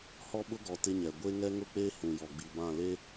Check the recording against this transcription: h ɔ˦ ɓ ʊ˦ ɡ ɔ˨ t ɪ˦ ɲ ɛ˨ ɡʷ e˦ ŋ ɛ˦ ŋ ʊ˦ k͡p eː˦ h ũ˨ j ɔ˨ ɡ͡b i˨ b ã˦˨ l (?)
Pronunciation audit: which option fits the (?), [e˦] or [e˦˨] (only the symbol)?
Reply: e˦